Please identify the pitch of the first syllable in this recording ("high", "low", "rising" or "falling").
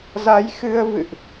rising